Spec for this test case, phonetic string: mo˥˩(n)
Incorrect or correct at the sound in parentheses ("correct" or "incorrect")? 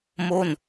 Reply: correct